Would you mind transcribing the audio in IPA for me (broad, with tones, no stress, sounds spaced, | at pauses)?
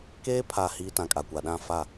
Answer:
k eː˦ pʰ a˨ h iː˦ t ã˨ kʼ a˨ kʷ a˨ ɗ ã˦˨ f a˦˨